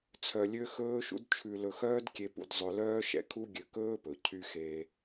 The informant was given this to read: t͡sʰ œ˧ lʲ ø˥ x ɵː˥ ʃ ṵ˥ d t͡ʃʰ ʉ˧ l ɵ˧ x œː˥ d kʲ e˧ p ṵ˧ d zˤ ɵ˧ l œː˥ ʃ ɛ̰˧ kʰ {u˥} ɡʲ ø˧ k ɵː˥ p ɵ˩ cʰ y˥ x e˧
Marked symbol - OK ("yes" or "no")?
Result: yes